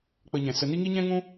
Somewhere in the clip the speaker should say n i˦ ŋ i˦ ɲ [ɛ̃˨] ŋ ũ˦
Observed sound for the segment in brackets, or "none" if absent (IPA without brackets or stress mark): ɛ̃˦